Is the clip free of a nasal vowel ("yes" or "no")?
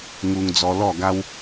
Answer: yes